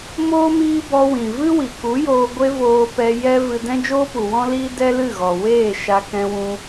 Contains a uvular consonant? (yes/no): no